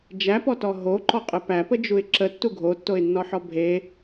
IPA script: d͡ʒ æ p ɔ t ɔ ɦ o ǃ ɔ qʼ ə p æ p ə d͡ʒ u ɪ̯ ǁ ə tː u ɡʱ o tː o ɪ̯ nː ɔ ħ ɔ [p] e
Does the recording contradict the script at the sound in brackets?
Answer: yes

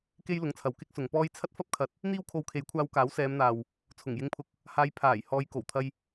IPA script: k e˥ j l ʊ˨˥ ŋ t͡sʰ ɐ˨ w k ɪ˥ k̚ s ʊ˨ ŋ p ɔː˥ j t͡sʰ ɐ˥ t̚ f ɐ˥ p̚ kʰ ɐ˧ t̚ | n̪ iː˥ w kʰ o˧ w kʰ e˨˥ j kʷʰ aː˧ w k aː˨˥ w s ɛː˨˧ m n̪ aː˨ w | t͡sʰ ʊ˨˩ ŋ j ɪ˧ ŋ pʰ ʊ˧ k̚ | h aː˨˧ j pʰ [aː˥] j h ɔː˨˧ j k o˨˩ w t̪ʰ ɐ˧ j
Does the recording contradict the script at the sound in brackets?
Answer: yes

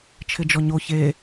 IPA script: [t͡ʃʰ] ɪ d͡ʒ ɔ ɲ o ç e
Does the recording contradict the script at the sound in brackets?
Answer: no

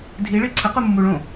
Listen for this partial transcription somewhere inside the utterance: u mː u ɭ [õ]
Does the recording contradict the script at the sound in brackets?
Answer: no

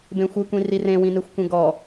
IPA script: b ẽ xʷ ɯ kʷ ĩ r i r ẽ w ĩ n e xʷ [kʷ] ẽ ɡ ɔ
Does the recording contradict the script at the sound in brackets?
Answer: no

